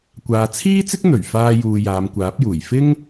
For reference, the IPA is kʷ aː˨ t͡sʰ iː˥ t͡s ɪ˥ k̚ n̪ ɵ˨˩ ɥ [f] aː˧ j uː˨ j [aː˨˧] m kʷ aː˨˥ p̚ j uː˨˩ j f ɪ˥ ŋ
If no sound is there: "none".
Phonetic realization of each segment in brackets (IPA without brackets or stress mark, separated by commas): f, aː˨˧